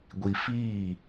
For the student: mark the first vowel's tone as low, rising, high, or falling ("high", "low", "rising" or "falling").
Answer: low